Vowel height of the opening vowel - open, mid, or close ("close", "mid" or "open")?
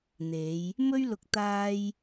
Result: mid